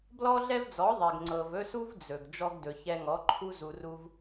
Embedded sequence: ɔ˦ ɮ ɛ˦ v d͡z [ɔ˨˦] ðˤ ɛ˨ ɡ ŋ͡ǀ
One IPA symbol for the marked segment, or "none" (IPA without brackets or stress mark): ɔ˨˦